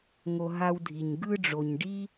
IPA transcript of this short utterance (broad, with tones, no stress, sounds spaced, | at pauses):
ŋ o˧ ɦ a˧ w dʱ i˩ ɲ ɡ ɯ˧ ɖ͡ʐ o˩ ɲ ɖ i˥